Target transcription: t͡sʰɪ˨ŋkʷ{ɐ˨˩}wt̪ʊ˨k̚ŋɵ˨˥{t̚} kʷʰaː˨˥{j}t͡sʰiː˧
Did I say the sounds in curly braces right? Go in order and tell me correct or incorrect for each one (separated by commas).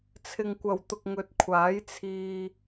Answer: correct, correct, correct